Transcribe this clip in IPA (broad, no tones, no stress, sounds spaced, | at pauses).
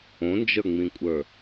õ n d͡ʒ ə˞ ŋ͡m ĩ kʷʼ ə˞